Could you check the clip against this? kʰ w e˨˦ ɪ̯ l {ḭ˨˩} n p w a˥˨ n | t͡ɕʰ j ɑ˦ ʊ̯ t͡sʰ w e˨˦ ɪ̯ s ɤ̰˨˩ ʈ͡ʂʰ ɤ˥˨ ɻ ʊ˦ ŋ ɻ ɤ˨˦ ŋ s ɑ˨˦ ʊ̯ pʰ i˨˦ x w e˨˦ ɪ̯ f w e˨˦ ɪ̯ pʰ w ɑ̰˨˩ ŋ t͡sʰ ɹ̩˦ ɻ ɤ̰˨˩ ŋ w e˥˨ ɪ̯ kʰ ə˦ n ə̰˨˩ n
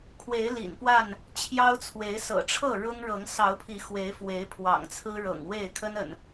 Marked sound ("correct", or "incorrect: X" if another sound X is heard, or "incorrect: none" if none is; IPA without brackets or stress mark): correct